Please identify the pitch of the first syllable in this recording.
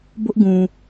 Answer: high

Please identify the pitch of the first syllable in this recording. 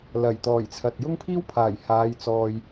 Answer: low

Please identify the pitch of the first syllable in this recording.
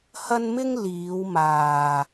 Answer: high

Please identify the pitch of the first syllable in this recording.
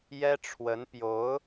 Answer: high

